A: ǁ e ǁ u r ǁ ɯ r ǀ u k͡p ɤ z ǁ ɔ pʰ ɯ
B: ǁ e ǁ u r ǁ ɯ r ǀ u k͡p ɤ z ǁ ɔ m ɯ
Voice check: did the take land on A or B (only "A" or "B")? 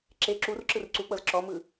B